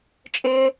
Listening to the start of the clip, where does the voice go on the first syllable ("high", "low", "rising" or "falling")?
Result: high